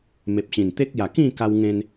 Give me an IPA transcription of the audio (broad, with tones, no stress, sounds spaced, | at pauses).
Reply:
m e˨ p̚ ɕ ĩ˨˩ n t̪ e˦ k̚ j a˨˩ k ĩ˥˧ k a˧ w ŋ ẽ˧ n